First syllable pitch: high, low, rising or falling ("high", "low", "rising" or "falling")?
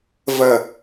low